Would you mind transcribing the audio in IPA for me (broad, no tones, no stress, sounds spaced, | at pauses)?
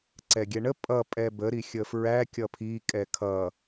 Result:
ǀ ɛ ɡʲ ɛ ɳ ə pʼ ʌ pʼ ɛ b ə ɾ i xʲ ə f ɹ æ kʲ ʌ pʰ i kʼ ɛ kʰ ʌ